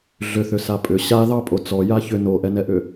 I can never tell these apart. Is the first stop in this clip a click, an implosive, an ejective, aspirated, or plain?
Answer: ejective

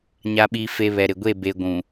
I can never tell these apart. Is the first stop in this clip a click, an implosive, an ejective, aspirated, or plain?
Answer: implosive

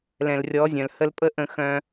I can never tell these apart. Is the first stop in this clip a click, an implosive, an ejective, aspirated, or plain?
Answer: ejective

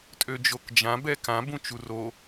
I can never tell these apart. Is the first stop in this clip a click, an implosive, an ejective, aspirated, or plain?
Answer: ejective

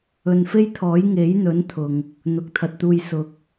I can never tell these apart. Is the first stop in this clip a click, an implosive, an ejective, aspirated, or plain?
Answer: aspirated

